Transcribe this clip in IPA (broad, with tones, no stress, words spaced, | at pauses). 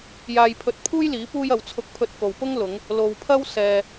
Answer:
jaː˧jpʰɵ˧t̚pʰuː˥j liː˨˥puː˥jɐ˨˧w t͡sʰʊ˧k̚pʰɵ˧t̚ko˨wpʊ˥ŋ lʊ˨˧ŋ | lo˨wpʰɐ˥w sɛː˧